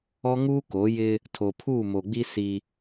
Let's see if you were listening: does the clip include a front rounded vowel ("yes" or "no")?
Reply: no